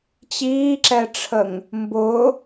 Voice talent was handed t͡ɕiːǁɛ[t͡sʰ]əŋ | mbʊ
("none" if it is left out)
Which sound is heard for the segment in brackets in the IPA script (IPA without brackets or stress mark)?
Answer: ʈ͡ʂʰ